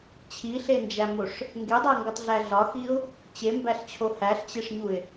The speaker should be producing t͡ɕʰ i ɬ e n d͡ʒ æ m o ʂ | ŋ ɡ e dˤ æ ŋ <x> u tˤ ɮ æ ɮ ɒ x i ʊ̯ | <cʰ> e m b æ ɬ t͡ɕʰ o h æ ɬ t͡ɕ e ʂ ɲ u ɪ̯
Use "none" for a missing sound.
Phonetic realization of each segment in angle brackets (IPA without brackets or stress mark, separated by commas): ɡ, t͡ɕ